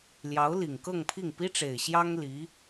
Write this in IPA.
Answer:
l j ɑ˧˥ ʊ̯ l i˨˩ ŋ k ɤ˥˧ ŋ pʰ i˥˩ ŋ p i˥ ʈ͡ʂ e˨˩ ɪ̯ ɕ j ɑ˥ ŋ l i˧˥

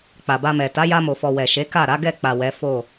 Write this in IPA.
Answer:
k͡p a˨ b a˧ m ɛ˨ t a˨˦ j a˧ m o˨ f ɔ˨ w ɛ˨ ʃ e˨˦ k a˦˨ ɾ a˨˦ ɡ ɛ˦˨ k͡p a˨ w ɛ˨˦ f o˦˨

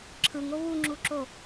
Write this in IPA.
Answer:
ǁʰ ɯ ŋ o β u ŋ͡ǁ u ǁ o

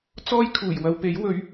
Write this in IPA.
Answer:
t͡s ɔː˥ j kʰ uː˨˩ j w ɐ˧ w p e˨˥ j w ɵ˨˥ ɥ

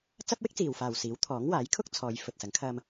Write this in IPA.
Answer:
t͡s ɐ˥ p̚ w ɪ˥ k̚ t͡s iː˨ w f aː˨ w s iː˨˥ w t̪ʰ ɔː˨˥ ŋ w aː˨˥ j kʰ ʊ˥ k̚ t͡sʰ ɔː˨˧ j f ɵ˨ t̚ s ɐ˨˥ ŋ kʰ ɐ˧ m

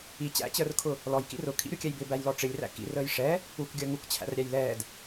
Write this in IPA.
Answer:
i t͡ɕ æ̰ t͡ɕ əː r kʰ ʊ | l ɔ j k ḭ r ʊ kʰ ḭ ɾʲ u kʲ ɛ j b ɪ b æ j l ɔ ʈ͡ʂ ɪ lʲ r æ̰ k ḭ r əː j ʂ ɛ | u k ɡʲ əː ŋ u k t͡ɕʰ æ̰ r ɾʲ æ j l ɛː d

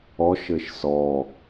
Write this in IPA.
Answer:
ɔ ʃ ɘ ʃ s ɔ

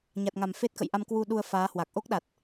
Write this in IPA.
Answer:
ɲ a˨˩ t̚ ŋ a˨˩ m f e˦˥ t̚ k ə̰˧˨ j ʔ a˧ m k w u˧ ɗ u˧ ə̯ f aː˨˦ h w a˨˩ k̚ ʔ o˦˥ k̚ ɗ a˨˩ t̚

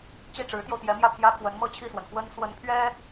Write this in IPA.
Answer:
t͡ɕ i˥˩ ʈ͡ʂ ɻ̩˧˥ t̪ j o˧ ʊ̯ t̪ j ɛ˧˥ m j ä˥˩ pʰ j ä˥ kʰ w ə˧˥ n m ɤ˥˧ t͡ɕʰ i˥˩ s w ə˩ n x w ə˥ n s w ə˧˥ n pʰ ɥ ɛ˥

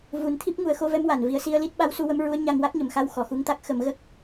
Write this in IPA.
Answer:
v u˨˩˦ n t̪ʰ i˦˥ p̚ ŋ u˨˩˦ ə̯ x o˧˥ v ɛ˧˥ m w a˨˩˨ n v i˧ ə̯ s i˧ ə̯ l i˦˥ t̚ ɓ a˧˥ w s u˧ w ə˧˥ m ɹ u˧˥ ə̯ ɲ a˧ ŋ w a˦˥ k̚ ɲ ə˨˩˨ m x a˧ w x ɔ˨˩˨ x u˧ ŋ t̪ a˦˥ k̚ x ə˨˩˦ m ɣ ə˦˥ k̚

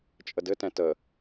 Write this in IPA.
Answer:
t͡ʃʼ ə d ɘ t ɛ̃ t ə

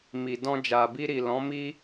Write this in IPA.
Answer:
m i˨ d ɔ̃˧ d͡ʒ a˨ b i˧ ɾ i˨ l ɔ̃˨˦ m i˦

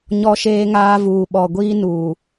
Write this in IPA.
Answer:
ɲ ɔ˦ ʃ eː˦ ŋ aː˦ v uː˨ ɓ ɔ˨ ɡʷ iː˦ n uː˨

